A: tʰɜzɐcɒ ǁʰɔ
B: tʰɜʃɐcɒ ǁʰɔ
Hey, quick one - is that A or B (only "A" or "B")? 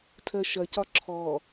B